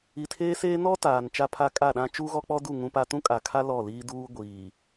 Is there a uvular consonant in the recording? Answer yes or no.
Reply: no